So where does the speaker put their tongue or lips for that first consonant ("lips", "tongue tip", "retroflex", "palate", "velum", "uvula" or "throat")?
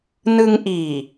tongue tip